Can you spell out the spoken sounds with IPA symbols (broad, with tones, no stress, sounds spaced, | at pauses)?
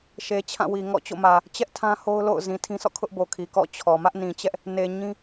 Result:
ʃ e˨ t͡ɕʰ ã˦˨ w i˨ ŋ ɔ̰˦˨ t͡ɕ o̰˦˨ m ä˨ | t͡ɕ ɛ˦ ʔ tʰ ã˦ h o˦ ʊ̯ l o̰˦˨ ʊ̯ z ĩ˨ tʰ ĩ˦ s ɔ̰˦˨ kʰ ʊ˦ ʔ b o˨ kʰ i˨ k ɔ̰˦˨ t͡ɕʰ ɔ˨ m ä˦ ʔ n ĩ˨ t͡ɕ ɛ˦ ʔ | n e˨ ɲ ĩ˦